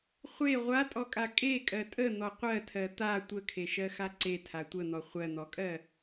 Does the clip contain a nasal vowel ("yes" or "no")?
no